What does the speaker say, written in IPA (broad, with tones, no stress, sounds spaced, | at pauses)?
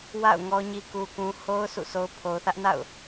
w a̰˦˨ ʊ̯ ŋ ɔ˦ ɲ i˦ k u˦ k ũ˦ h o˦ ʊ̯ sʰ ṵ˦˨ sʰ o˦ ʊ̯ pʰ o˨ ʊ̯ θ ä˦ ʔ n a̰˦˨ ʊ̯